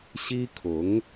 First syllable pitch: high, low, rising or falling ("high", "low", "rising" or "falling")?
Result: high